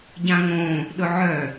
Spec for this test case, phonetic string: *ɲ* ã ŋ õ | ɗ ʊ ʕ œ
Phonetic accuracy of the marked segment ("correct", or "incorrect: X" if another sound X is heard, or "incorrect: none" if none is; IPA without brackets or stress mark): incorrect: ɟ